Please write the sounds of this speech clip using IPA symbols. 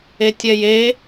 e tʲ ɛ j e

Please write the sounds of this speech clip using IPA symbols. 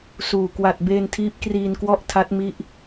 s uː˨˩ k w a˨˩ t̚ b eː˧ n tʰ iː˦˥ p̚ k r iː˧ n k w ɔ˥˩ ʔ tʰ a˦˥ t̚ m i˦˥ ʔ

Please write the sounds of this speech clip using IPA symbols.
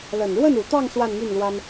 l ə˨˩ n ɻ w ə˥˩ n u˨˩ t̪ ɑ˥˧ ŋ s w a˥˧ n m y˥˩ n l w a˥ n

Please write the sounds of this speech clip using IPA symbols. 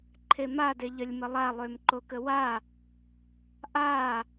ǃʰ e m a d e ʎ ə lʲ m ə lˠ a lˠ ø m ǃ o k ə w a | ʔ a

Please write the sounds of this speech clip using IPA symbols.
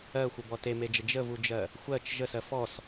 ɜ xʷ ə b ɔ t e m e d͡ʒ ə d͡ʒ ə v u d͡ʒ ɜ | xʷ ɜ t͡ʃ ʒ ə s ɜ f ɔ s

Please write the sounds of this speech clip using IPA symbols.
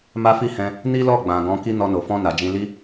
m a˦ f i˦ h ɛ̃˧ | n i˦ l ɔ˦˨ ɡ͡b ã˨ ɡ ɔ̃˨˦ k i˦ n ɔ˧ n o˨ f ɔ̃˧ n a˨ d͡ʒ ĩ˧ l i˦

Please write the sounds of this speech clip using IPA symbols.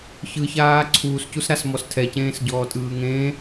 ç ɯ ç aː ǀʰ uː s c u s ɾ a s m ɔ s tʰ ɛ c ẽː s ɟ ɔː tʼ ɯː ŋ ẽː

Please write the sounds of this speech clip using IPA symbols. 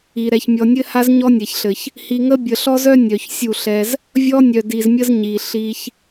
i˨ ɾ ɛ˨ ç mʲ ɔ˨ nʲ ɘ˦ h a˦ z ɲ ɔ˦ nʲ ɛ˨ ç ɬ ɘ˨ ç | h i˨ ŋ ə˦ bʲ ə˨ ɬ ɔ˦ z œ˦ nʲ œ˨ ç sʲ u˦˨ ɬ ɛ˦ z | vʲ ɔ˦ nʲ œ˨ d i˨ z mʲ ə˦ z ɲ i˨ ɬ i˦ ç

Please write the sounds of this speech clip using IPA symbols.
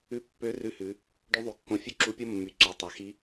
ʉ˧˥ pː ø˧˥ r ʉ˧ h ʉ˩˧ | ɖ ʉ˧˥ ðˤ y˩˧ kː õ˧ fʲ ø˥ ǁ u˧˥ pʲ o˥ mː y˩˧ ǀ y˩˧ tˤ ɑ˩ x i˧˥

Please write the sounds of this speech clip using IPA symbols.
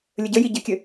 lʲ ə ɟ ə j i ɟ ɘ kʲ ɘ

